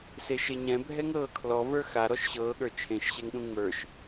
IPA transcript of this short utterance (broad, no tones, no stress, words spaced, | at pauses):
seʃeɲɛ̃ bʱɛŋɾɤːkʰlɔ və˞xa ɾɔʃɕɤː ɠə˞t͡ʃʰẽʃ ɕɛŋɗũŋ͡mə˞ʃ